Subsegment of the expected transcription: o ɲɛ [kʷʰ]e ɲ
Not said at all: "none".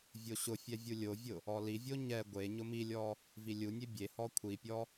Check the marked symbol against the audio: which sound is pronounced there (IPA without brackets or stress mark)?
ɡʷ